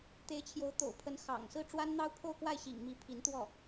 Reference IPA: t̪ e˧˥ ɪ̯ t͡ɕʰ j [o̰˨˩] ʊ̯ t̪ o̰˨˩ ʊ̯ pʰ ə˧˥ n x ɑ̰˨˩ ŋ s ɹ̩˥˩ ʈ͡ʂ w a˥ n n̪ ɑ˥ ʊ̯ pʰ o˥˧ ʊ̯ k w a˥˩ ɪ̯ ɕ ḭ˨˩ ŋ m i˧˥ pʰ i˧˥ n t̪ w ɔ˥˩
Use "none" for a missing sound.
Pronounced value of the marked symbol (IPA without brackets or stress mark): o˧˥